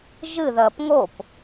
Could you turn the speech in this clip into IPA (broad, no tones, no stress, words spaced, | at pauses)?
ʒɨðɐːp ŋop